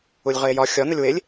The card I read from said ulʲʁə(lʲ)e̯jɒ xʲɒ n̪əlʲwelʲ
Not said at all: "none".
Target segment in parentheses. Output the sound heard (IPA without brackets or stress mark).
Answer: none